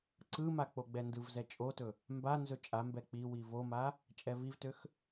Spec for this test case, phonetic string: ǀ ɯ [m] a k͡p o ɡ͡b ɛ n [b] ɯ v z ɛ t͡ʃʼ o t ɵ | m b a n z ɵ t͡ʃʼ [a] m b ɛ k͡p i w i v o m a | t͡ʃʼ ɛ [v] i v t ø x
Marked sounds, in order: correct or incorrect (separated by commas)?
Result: correct, incorrect, correct, correct